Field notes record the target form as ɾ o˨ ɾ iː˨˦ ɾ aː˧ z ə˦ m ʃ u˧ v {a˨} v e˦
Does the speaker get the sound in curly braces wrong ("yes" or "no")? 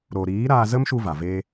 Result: no